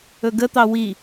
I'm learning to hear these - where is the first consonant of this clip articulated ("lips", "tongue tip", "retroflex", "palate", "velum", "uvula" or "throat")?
velum